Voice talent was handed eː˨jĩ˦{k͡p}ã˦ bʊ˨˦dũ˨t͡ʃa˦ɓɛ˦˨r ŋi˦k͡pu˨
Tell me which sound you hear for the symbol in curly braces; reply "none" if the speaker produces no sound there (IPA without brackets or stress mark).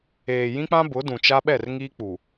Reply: k͡p